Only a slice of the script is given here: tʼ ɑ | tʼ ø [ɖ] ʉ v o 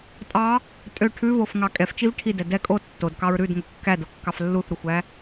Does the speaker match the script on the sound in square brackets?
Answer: no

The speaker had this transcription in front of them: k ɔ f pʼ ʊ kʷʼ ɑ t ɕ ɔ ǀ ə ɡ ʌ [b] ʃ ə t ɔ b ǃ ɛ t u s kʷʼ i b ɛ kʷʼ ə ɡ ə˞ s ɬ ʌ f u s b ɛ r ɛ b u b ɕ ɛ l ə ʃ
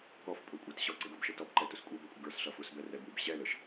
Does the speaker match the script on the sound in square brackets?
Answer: yes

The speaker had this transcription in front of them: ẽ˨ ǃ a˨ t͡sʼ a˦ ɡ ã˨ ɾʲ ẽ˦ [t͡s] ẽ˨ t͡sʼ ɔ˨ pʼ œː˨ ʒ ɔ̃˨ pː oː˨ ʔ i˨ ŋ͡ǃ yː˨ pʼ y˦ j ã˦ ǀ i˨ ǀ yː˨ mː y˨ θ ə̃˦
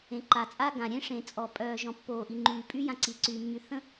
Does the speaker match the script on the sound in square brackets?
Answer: no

